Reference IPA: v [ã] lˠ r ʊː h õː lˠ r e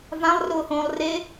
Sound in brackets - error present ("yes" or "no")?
no